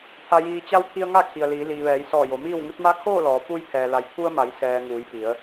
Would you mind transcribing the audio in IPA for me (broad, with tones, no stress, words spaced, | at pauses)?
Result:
t̪ʰa˩jiː˩t͡ɕa˧w pʰi˧ə̯ŋa˥˨kʰi˩ə̯liː˩˧ liː˩ʋɛː˩˧jsɔː˧˩ jo˩˧miː˥˨wŋu˧˥t̚ ma˧˥kʰoː˥˨lɔː˩˧ pu˧j pʰɛː˩la˩˧jpʰu˧ə̯ma˩˧j sɛː˩ ŋuː˩˧jpi˩˧ə̯